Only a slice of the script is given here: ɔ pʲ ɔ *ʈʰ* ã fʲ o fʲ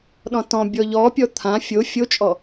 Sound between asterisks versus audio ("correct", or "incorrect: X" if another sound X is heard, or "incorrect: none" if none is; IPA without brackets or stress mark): incorrect: t̪ʰ